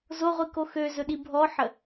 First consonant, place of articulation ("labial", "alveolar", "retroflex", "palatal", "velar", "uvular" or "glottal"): alveolar